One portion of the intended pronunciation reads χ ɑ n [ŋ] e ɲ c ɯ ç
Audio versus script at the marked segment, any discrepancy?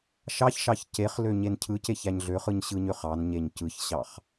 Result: yes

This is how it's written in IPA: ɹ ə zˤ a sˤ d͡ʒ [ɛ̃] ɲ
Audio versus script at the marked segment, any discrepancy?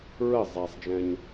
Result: no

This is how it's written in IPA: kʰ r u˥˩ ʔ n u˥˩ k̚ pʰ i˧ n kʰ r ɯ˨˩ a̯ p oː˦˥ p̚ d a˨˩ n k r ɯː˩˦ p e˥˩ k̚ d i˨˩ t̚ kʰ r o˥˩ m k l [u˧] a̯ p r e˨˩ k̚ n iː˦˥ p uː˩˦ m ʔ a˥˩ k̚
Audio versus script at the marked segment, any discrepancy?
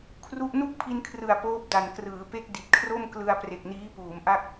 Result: yes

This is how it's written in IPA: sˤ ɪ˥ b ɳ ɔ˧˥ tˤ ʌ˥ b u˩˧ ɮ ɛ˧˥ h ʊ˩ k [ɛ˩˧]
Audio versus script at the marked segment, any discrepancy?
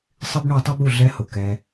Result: yes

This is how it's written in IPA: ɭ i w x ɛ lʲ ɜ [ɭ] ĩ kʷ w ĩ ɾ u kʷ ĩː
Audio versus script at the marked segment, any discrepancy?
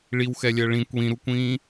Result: no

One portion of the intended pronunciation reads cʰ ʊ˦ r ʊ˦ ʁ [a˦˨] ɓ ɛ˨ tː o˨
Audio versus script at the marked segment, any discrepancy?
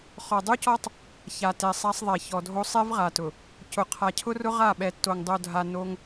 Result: no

